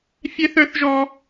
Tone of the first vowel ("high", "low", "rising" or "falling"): high